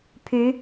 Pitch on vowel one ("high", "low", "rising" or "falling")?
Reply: rising